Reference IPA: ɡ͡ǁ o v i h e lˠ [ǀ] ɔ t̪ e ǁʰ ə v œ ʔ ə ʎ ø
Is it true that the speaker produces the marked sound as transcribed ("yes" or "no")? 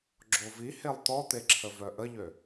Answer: no